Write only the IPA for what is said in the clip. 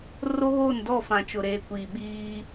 ro˦ɣoː˦˨ndɔ˦˨fã˨ t͡ʃʊ˨ɾeː˨kʷiː˨ɓiː˦

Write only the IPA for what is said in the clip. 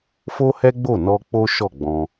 fo˦hɛ˦ɡ͡bo˦˨ nɔ˧k͡po˦ ʃɔ˦˨ɡ͡bɔ̃˧

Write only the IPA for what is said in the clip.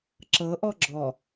ǁɤʔɔ ɡ͡ǁɔ

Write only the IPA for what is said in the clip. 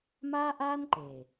ma˦ʔa˦nǃe˨

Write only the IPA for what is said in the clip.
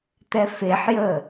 t̪ɛfeħjə

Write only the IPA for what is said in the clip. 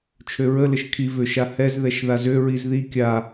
t͡ʃʰøɹə ləʃkʰi vøʃahɛz ðɛʃðazø ɹizði kʲa

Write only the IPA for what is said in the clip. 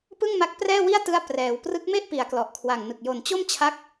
pɯ˥˩ŋma˦˥k̚prɛː˥˩wi˥˩a̯ tɯ˧a̯ prɛː˩˦w prɯ˦˥k̚me˥˩ʔpi˩˦a̯ klɔ˨˩ʔkʰwa˨˩ŋnɯ˨˩k̚ jo˨˩nt͡ɕo˥˩m t͡ɕʰa˦˥k̚

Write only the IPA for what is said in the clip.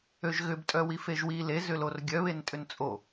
øʒɣʏb tʼœwifeʒwi le zʏlorɡʲœ βentʼʏnt͡sʼo

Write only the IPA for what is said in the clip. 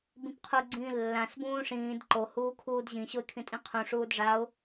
bĩpqʰuɡ͡ǀĩː lːãs bũːʂĩːd ǃohuː kʰuːdʑĩɕoɪ̯ kʰĩtʼĩqʰũʂuːd ʐaʊ̯

